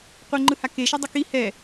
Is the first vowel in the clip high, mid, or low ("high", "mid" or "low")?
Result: mid